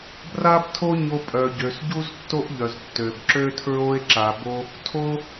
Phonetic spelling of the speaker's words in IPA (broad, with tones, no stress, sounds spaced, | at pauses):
b r a˦ b tʰ o˦ ɲ o˧ pʼ œ˨ ɟ ø˨ s ɟ u˦ z tː o˦ ʔ ʎ œ˨ z tː ø˨ b ǁ ø˦ tʰ ɹ o˦ e̯ ǁ a˨ b o˧ | tʰ o˦